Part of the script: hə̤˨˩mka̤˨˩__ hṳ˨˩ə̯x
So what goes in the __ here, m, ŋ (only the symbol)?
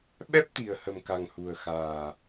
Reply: ŋ